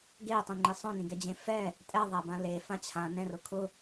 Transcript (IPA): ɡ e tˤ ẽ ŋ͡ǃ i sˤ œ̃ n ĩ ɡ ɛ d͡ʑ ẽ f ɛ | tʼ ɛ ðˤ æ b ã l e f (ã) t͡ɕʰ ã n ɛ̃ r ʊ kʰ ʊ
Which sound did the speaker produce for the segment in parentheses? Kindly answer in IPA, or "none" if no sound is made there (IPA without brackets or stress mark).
ã